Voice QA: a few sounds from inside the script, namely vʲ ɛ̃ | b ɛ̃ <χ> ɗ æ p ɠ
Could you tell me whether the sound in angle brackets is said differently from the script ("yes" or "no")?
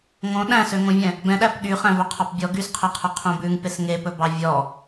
yes